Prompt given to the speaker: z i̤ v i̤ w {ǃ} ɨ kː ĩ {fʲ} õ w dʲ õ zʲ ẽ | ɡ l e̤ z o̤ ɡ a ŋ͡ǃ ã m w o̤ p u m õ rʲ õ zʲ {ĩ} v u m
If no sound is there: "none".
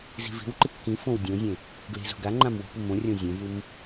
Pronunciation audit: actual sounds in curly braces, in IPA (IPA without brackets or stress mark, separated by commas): ǃ, f, ẽ